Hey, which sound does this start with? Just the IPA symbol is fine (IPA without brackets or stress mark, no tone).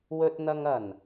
w